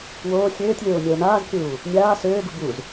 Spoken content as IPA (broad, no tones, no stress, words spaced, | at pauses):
woː xʲøːtʲlʲoː nʲoːnaːzkʲuː | nʲaː søːɡu buz